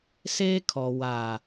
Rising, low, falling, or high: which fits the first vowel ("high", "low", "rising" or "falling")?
high